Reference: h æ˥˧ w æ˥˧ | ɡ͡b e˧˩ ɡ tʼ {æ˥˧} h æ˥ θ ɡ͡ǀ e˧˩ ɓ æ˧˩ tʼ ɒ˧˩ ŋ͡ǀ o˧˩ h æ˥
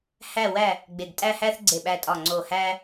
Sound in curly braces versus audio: correct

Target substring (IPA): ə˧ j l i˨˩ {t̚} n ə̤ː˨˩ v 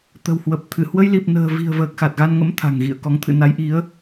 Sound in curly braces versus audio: incorrect: p̚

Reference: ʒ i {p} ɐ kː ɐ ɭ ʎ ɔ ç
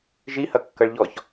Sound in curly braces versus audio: incorrect: h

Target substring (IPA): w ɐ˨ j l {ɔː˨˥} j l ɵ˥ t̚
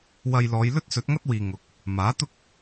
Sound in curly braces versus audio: incorrect: ɔː˨˧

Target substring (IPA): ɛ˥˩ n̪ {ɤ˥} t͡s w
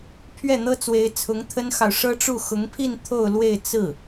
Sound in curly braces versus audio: correct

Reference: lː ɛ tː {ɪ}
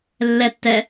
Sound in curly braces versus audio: incorrect: ɛ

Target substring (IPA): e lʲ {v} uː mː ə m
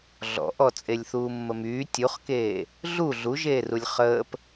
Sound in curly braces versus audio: incorrect: θ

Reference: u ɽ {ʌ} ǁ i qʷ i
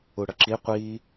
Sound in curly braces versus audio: correct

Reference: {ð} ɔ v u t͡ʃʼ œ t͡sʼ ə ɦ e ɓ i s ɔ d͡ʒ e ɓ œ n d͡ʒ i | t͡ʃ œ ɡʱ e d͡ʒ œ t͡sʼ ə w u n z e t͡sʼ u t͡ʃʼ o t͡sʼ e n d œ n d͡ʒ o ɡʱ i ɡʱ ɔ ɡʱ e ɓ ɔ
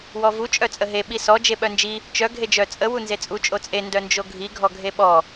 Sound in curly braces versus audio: incorrect: w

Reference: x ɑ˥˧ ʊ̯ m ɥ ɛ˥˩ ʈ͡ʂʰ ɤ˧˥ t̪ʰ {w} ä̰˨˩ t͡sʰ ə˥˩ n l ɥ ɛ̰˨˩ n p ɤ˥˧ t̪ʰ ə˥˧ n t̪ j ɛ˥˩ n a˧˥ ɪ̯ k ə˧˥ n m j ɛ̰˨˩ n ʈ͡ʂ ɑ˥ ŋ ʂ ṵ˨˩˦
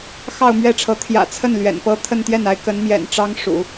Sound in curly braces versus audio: incorrect: j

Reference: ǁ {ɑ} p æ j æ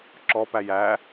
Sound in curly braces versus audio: incorrect: ɔ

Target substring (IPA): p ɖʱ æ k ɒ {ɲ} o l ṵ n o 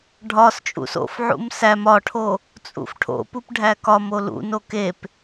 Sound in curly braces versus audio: incorrect: m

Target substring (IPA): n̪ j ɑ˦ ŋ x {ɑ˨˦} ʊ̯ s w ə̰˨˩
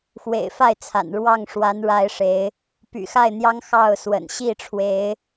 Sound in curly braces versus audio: incorrect: ɑ˥˨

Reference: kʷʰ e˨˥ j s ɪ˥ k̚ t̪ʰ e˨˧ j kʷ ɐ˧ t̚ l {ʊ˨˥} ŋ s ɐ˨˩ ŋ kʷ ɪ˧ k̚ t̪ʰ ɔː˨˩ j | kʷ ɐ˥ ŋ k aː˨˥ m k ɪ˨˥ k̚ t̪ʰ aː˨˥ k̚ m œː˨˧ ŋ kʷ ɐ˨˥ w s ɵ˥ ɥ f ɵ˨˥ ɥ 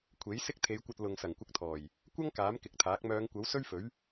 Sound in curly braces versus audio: incorrect: ʊ˨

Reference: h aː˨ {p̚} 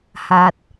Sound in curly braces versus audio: incorrect: t̚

